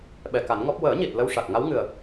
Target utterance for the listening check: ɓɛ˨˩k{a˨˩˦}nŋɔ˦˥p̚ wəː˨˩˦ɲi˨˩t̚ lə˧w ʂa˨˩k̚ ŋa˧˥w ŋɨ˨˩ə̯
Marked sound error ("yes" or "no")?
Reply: no